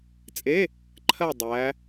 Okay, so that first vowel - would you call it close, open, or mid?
mid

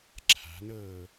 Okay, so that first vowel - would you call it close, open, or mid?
open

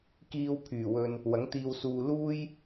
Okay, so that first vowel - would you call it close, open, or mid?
close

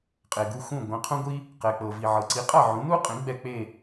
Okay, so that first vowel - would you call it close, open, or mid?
mid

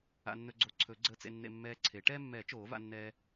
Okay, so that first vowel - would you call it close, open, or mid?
open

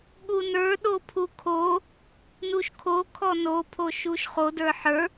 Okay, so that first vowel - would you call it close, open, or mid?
close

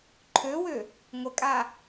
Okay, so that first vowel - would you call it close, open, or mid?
mid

